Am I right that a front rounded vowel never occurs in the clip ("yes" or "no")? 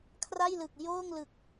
yes